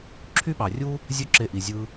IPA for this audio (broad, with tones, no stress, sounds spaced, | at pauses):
ǁʰ y˦ ɓ ɑ˨ rʲ uː˦ | zʲ ø˦ ǁ e˧ ʔ i˨ zʲ ɯː˧